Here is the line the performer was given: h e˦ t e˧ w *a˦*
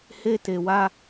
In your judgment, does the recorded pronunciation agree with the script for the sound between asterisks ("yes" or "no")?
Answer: yes